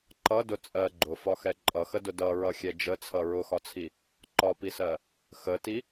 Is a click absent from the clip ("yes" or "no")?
no